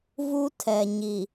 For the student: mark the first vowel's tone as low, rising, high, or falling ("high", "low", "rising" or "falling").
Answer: high